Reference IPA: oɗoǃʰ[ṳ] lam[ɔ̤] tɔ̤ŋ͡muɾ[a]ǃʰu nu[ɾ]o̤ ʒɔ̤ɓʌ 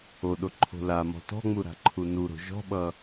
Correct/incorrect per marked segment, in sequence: incorrect: o̤, correct, incorrect: a̤, correct

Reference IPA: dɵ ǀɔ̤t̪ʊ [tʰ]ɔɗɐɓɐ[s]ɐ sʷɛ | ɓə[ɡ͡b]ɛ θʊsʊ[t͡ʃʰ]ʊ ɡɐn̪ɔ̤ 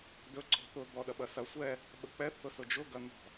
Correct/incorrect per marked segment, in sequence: incorrect: d̪, correct, incorrect: k͡p, incorrect: d͡ʒ

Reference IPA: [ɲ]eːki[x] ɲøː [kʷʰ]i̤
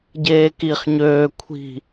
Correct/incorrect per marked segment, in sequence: incorrect: ɟ, incorrect: χ, correct

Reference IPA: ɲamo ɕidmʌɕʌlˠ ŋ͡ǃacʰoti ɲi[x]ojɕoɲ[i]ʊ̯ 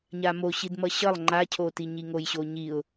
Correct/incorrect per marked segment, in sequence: incorrect: ŋ, correct

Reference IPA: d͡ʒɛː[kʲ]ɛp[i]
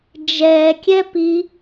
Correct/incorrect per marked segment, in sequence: correct, correct

